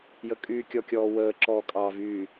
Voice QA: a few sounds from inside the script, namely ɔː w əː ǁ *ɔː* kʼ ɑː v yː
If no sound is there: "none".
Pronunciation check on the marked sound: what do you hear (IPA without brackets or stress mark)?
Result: ɔː